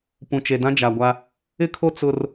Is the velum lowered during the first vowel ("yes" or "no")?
yes